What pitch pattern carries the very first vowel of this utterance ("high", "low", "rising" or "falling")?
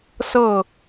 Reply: falling